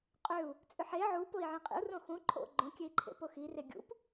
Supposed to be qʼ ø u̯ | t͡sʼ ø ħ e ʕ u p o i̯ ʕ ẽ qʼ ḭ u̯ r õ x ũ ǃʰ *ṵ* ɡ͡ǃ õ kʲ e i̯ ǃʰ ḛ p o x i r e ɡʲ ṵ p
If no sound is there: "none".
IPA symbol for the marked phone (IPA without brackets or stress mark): o̰